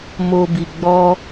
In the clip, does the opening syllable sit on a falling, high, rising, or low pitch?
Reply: low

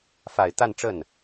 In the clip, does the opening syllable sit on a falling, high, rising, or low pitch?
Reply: low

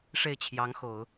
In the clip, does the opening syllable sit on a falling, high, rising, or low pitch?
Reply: falling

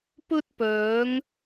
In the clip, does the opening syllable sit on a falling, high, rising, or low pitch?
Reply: high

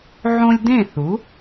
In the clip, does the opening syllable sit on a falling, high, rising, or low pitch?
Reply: high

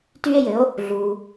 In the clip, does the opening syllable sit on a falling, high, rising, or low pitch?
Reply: high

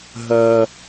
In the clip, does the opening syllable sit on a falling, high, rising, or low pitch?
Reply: high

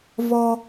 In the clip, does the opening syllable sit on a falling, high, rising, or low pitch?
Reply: high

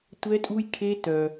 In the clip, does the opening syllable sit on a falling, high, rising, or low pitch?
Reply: high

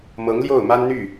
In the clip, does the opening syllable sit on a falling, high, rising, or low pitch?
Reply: rising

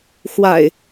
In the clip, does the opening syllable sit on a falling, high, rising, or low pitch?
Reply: low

